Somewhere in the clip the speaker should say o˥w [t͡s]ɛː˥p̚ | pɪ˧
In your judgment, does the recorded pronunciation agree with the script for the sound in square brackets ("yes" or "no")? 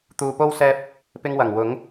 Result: no